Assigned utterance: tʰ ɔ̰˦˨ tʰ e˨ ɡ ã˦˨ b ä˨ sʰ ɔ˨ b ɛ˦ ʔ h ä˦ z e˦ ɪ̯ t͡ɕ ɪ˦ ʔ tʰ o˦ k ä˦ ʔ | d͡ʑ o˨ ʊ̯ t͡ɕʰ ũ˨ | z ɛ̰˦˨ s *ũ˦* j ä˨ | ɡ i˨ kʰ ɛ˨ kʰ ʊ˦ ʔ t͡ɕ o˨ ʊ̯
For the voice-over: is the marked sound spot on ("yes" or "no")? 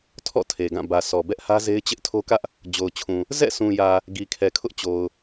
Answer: no